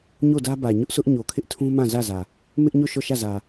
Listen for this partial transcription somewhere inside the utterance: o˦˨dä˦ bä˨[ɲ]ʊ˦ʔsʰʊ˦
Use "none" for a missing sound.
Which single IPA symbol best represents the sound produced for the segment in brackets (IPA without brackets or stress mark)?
ɲ